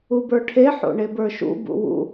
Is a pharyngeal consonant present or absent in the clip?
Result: present